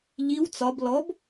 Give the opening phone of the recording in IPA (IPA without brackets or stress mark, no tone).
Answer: ʎ